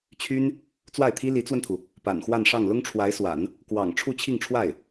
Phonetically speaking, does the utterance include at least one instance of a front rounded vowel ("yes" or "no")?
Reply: yes